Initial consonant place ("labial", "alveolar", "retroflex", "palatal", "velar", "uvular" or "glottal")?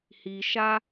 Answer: glottal